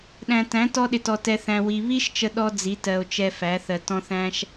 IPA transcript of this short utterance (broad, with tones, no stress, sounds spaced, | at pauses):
ɗ æ̃˨ t æ̃˨˦ t ɔ˧ ɗ ɪ˨ t ɔ˨ t ɛ˨ θ æ̃˨ w i˨ β i˦ ʃ t͡ʃ ə˦ ɗ ɔ˦ d͡z i˨˦ t ɜ˨ o̯ t͡ʃ ɛ˧ f æ˨˦ θ ɜ˨ t ɔ̃˦ θ æ̃˦ ʃ